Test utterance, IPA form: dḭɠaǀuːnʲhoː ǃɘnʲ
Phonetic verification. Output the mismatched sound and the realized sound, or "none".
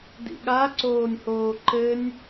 uː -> oː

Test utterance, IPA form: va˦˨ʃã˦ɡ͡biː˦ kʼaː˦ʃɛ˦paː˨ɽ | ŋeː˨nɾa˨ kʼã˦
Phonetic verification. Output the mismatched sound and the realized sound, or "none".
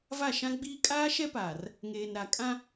ɽ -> r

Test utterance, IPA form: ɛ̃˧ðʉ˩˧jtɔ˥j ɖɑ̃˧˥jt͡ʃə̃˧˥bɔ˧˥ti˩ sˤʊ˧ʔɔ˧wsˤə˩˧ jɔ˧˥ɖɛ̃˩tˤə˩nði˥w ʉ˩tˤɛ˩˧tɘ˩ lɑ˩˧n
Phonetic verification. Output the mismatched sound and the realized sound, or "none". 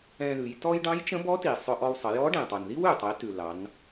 ɘ˩ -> ʉ˩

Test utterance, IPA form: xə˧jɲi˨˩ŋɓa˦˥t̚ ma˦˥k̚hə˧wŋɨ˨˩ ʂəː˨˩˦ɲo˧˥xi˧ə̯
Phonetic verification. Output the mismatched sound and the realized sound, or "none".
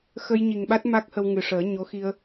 none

